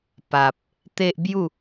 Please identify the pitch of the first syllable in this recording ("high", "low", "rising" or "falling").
low